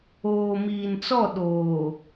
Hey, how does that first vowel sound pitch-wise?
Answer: low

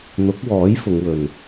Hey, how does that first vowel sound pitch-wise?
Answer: rising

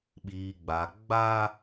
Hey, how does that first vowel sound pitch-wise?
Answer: low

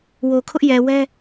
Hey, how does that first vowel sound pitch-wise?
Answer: low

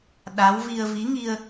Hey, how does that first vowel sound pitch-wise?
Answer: rising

